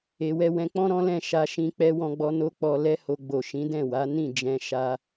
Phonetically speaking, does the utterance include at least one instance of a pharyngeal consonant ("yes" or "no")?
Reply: no